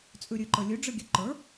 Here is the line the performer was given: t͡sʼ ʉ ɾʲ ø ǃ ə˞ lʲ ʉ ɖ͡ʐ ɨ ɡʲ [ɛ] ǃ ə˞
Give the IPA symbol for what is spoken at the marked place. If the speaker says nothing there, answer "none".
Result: ø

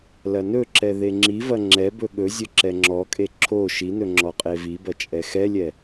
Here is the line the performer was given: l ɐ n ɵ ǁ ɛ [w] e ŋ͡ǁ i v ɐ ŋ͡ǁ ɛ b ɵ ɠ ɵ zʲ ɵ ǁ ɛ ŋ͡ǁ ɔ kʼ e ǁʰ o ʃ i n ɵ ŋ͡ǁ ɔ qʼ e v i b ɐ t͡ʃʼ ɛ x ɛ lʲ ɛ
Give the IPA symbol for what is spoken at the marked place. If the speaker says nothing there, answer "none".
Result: ð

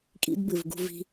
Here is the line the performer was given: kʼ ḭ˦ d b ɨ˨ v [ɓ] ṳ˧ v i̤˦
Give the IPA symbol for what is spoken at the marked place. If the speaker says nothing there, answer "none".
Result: ɡ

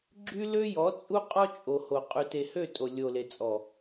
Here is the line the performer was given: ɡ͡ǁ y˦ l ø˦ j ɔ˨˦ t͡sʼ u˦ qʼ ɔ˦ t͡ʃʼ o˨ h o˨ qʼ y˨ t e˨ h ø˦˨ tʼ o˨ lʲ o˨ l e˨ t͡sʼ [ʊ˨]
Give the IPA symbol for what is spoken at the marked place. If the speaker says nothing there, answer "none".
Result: ɔ˨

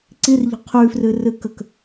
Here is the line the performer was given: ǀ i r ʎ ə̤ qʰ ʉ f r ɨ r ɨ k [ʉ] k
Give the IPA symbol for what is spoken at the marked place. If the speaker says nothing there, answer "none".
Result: ə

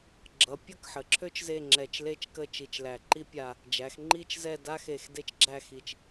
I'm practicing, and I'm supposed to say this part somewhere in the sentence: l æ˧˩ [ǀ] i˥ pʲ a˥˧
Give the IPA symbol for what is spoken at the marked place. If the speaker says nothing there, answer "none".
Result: ǃ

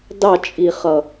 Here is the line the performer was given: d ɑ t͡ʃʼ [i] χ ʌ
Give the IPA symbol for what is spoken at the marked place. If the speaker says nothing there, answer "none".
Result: i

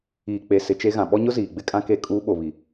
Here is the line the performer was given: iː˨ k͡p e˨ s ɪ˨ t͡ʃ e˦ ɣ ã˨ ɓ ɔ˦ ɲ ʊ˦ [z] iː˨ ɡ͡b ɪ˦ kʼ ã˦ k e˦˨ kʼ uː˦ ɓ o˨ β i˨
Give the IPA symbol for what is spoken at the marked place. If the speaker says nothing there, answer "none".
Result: z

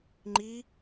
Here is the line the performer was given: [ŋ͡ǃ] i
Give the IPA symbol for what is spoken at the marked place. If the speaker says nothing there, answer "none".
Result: ŋ͡ǃ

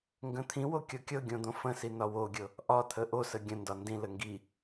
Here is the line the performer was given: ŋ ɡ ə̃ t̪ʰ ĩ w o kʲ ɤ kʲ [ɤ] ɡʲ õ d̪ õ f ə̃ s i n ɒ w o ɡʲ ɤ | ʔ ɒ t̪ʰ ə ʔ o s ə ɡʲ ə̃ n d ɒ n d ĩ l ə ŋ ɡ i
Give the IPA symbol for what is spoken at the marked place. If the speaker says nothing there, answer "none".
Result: ɤ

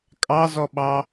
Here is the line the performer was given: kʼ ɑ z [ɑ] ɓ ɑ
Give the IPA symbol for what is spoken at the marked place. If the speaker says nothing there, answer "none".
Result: ɔ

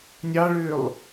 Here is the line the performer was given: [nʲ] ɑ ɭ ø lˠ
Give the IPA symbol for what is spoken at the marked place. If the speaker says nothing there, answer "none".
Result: nʲ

